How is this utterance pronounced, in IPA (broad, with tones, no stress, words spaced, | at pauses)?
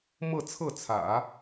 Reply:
mɤ˥˧t͡sʰɤ˥˩t͡sʰä̰˨˩˦